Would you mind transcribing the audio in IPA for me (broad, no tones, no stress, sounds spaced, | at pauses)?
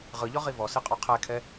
ʁ ɯ ʎ ɔ ʁ i v ɔ s i qʼ ɔ qʰ ɛ kʰ ɛ